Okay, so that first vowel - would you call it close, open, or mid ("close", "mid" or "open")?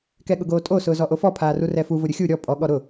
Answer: mid